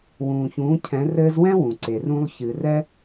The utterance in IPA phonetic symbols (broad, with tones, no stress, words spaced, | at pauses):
wũː˩çũː˩˧ cʰɛ̃˩˧rɘː˧zwɛ̃˥ wũ˩ǀe˩rũ˧lˠ çɨ˩rɛ˧